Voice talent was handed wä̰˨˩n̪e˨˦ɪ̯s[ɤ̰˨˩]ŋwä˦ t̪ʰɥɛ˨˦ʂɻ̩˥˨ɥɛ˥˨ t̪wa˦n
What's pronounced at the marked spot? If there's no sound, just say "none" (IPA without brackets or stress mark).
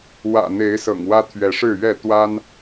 ɤ̰˨˩